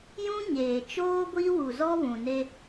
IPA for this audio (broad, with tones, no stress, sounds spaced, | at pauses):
j ũ˦ ɲ eː˨ t͡ʃ oː˦ ɡʷ i˦ w u˨ z ɔ˦ β ũ˨ n e˦